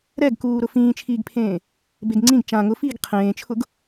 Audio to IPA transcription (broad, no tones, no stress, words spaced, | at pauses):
ɾɛɡkuː ɾʊfĩːt͡ʃʰiːɡpʰẽː | beɡŋ͡ǀĩɡ t͡ʃã ŋʊfiːɡ qʰẽːt͡ʃʰʊɡ